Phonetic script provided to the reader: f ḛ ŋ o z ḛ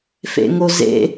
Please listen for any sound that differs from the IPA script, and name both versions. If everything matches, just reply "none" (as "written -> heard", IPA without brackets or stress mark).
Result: none